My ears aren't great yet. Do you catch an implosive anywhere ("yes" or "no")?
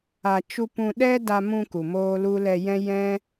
yes